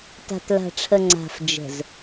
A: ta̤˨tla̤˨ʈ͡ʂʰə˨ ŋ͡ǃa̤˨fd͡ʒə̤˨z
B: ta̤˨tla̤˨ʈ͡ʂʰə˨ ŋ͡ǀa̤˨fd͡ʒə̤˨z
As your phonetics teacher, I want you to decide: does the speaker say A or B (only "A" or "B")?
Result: B